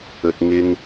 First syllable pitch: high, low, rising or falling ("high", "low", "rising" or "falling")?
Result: low